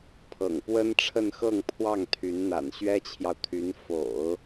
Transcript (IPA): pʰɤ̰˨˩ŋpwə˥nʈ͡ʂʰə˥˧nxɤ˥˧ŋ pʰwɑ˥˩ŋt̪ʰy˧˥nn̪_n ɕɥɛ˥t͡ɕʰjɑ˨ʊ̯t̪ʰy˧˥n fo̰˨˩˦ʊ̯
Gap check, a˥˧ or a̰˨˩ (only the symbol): a̰˨˩